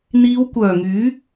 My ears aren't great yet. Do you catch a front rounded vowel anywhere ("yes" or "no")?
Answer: yes